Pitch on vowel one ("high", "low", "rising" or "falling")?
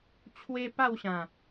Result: high